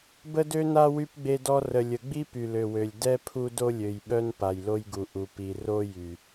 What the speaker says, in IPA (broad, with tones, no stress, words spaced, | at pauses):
bə˦dø˦na˦ wy˦pɡ͡be˦dɔ˦ rə˨lʲə˨ɡ͡bi˦ py˨lø˨wø˨lʲ dɛ˦ pʰu˦do˦lʲø˨jɓœ˦n pa˨jlo˦jɡu˨ ʔu˨ pi˨ ro˦jy˨